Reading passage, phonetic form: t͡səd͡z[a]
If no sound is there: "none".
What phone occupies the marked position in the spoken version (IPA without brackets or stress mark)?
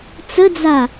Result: a